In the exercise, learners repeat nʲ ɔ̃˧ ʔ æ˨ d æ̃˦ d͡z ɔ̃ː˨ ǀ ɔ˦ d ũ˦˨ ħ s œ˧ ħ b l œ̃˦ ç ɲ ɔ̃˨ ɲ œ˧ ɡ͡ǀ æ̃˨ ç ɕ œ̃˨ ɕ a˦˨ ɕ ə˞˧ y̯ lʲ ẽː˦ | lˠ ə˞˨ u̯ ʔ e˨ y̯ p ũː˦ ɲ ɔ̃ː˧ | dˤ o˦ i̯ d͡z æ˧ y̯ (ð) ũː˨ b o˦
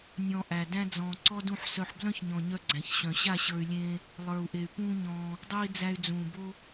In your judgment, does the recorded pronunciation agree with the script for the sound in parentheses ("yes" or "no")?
no